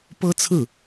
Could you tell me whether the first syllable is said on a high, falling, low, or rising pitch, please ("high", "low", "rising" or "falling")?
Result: high